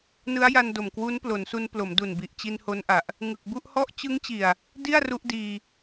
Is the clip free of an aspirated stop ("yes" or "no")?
yes